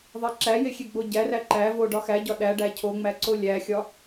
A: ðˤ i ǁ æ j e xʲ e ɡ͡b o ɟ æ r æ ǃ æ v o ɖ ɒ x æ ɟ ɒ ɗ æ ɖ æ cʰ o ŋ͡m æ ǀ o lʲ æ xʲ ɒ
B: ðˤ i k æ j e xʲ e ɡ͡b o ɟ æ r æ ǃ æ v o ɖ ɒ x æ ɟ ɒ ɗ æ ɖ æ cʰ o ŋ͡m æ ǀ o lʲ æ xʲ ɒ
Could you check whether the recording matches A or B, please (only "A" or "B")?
A